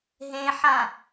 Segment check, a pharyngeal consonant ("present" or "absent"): present